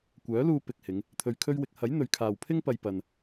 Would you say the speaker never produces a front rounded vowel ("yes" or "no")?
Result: no